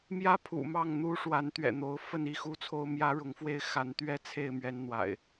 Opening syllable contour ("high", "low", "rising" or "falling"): high